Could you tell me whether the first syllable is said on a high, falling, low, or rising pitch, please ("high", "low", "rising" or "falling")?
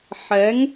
rising